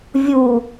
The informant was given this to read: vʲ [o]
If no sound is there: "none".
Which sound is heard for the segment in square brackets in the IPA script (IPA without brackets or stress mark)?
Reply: u